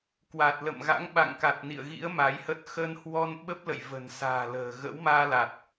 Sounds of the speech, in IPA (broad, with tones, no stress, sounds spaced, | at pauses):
k w a˨˩ t̚ l ə̰˧˨ m ɣ a̰˧˥ ŋ ɓ a̰˧˨ ŋ k a˨˩ t̚ n ḭ˧˨ ə̯ ɣ ḭ˧˥ ə̯ m a˨˦ j h ə˦˥ t̚ x ə˧ n h w ɔ˧ n ɓ ə˦˥ p̚ l ə̰˧˨ j v ə̤˨˩ n s a̤ː˨˩ l ə̤ː˨˩ ɣ ə̰˧˥ w m aː˧ l a˨˩ t̚